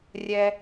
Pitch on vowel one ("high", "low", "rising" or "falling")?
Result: low